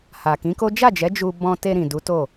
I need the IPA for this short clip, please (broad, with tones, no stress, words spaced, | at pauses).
ha˨kĩ˨˦ko˦ d͡ʒa˦˨d͡ʒɛ˨˦ d͡ʒu˧ bɔ̃˧te˧ɾĩ˨ du˨˦to˦˨